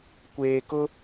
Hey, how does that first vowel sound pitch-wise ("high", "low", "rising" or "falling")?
low